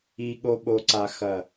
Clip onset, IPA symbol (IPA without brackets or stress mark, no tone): i